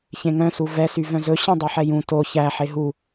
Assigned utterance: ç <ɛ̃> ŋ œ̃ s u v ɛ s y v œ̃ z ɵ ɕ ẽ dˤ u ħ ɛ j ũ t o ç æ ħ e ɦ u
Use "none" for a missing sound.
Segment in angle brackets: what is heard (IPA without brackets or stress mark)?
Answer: ẽ